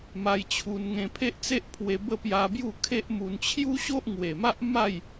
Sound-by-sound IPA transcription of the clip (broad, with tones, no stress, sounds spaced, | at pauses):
m a˧ j t͡ɕʰ u˧ n ŋ ẽ˧ pʰ e˦ ʔ t͡s e˦ ʔ pʰ w e˧ b ə˥˧ p j a˧ b j u˥˧ kʰ e˦ ʔ m u˧ n t͡ɕʰ j u˦ ɕ o˦ ʔ ŋ w e˨˩ m a˦ ʔ m a˥˧ j